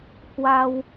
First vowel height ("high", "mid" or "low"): low